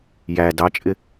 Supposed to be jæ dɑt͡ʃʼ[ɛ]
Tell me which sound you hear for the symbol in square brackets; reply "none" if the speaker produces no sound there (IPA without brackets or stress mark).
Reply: ɪ